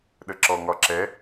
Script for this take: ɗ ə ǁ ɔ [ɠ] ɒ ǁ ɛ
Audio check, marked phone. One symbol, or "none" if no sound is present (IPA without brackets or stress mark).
ŋ